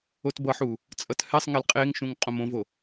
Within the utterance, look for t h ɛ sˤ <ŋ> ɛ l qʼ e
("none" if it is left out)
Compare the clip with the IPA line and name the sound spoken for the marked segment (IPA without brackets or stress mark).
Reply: ŋ